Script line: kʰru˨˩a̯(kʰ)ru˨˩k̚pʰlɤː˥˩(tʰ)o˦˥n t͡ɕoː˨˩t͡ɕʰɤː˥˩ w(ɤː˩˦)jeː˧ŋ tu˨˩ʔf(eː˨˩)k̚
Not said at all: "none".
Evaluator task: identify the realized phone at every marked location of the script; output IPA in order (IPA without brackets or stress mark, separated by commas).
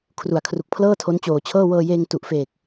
kʰ, tʰ, ɤː˧, eː˨˩